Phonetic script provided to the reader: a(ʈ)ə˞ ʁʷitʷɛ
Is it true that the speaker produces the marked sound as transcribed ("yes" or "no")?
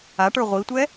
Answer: yes